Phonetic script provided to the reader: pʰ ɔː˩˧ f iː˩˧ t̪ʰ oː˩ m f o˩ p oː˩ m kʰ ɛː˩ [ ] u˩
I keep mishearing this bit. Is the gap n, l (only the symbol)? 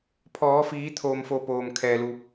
l